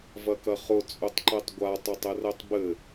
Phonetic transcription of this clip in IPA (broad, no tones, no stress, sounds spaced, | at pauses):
v ɐ k ɐ χ ʊ t͡sʼ ʊ tˤ ǃ ɛ tˤ ɡʷ a tˤ o tˤ ɘ r ɛ tˤ b ɘ